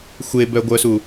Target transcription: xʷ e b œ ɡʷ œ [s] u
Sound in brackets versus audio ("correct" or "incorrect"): correct